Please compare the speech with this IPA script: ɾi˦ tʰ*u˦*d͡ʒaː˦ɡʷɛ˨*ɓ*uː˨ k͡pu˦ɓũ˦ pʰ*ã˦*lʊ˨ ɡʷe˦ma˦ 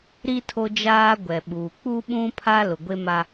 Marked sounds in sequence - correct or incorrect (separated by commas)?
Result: incorrect, correct, incorrect